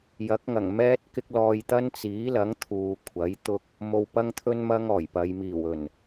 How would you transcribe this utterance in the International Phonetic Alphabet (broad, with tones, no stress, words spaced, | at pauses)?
jɐ˨˥k̚ŋɐ˨˩ŋ mɛː˥t̚kɪ˥k̚lɔː˧j t̪ɐ˥nt͡siː˨˥lɐ˨˥ŋ t̪ʰuː˨kʷʰɐ˨˥jt̪ʊ˥k̚ | mo˧wpɐ˥ŋt̪ʰɵ˥n mɐ˥ŋɔː˨˩jpɐ˨˧j miː˨˩wɵ˨˩n